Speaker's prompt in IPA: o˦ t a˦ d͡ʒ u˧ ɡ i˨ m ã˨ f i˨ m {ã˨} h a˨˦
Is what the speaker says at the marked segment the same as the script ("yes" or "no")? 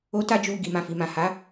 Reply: yes